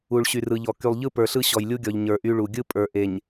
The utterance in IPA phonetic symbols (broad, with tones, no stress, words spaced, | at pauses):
u˨ɭɕy˨rɯ˨ʎɔ˨ ky˨lˠʎɯ˦pə˞˨ɬɯ˦ ɕɔ˨jlʲu˦ɡʲɔ˨ʎ ɲə˞˨ʔy˦ɭu˨ ɡʲɯ˦pʼə˞˨ʔe˨ɲ